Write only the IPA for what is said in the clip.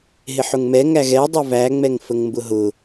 ɦɪħʊŋmɛ ŋæɣɛ dˤʊvæ ŋ͡mɛŋfəŋmbʊɦʊ

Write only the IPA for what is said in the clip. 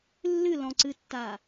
lːɨlɔ̃ǀɨtːa

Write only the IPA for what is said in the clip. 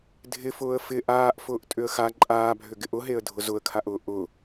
dʱɪfʊːə̯ fɪ ʔaːʔ fʊːʔtʼʏə̯xa ǃʼaːbʱʏ ɡɪʔʊɦeə̯ dʱʊzʊə̯kʰaʔʊː ʔʊ

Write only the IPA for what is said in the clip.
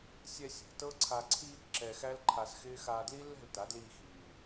sʲɛ˧ sʲɛ̤˨tɤ˦ǀʰa˧ ǀʰiː˧kǁɛ˨ xæ˦lǃʰa˧sxɪː˦ xaː˧dli˦ lːɛ̤˦˨lta˨˦dliː˧xiː˨

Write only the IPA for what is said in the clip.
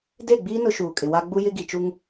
de˦˨ɡ͡biː˦ nʊ˦ʃuː˨kʼɪ˨wa˦ ɡ͡bu˦jɪ˦ɡi˨t͡ʃu˦ŋ

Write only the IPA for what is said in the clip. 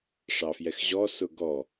ʂɑfjɛxʑɔ sʊɡɔ

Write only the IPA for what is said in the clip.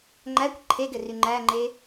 ŋ͡ǃækʷ ǃʰeɡɘry ŋ͡ǃæŋ͡ǃe

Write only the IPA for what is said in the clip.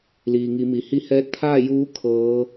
liː˩ŋi˩˧mi˩ hi˧˥hɛː˧˥t̚ t̪ʰaː˥˨juː˧˥ kʰɤː˧˥

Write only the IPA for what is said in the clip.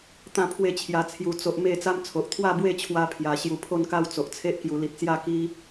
t̪ã˥˧ pʰwe˥˧t͡ɕʰja˧t͡sʰju˧ t͡so˦ʔ me˥˧ t͡sa˦mt͡sʰo˨ʔ t̪ʰwa˥˧bwe˥˧t͡ɕʰwa˧ pʰja˨˩ ɕju˨˩pʰo˥˧nka˥˧w t͡so˨ʔt͡sʰe˦ʔ kju˧ li˨t̚t͡sja˥˧ ki˦

